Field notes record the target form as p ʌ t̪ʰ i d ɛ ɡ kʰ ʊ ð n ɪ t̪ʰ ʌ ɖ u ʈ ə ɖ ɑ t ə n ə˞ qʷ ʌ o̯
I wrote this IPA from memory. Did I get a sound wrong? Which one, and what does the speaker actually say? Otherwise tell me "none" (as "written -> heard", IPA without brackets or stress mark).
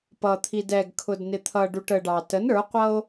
ð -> d